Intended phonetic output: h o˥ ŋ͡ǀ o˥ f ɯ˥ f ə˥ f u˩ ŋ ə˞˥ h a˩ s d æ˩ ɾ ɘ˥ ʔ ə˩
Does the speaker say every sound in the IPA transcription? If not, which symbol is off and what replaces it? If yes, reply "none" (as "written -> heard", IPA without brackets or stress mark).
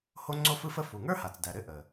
s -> t͡s